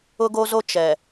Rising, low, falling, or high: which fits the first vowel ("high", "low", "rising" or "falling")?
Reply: high